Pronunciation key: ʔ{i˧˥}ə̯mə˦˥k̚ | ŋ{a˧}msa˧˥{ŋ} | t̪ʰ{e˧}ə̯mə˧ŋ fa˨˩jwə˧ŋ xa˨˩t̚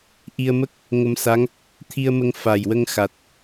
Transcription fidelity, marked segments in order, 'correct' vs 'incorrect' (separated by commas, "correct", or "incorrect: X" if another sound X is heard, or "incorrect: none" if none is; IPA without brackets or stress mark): incorrect: i˧, incorrect: ə˧, correct, incorrect: i˧